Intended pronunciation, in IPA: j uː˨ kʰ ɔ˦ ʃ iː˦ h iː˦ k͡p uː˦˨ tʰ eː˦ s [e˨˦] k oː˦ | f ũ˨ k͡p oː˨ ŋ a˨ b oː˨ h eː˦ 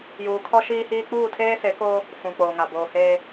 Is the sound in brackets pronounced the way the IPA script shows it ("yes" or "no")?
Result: yes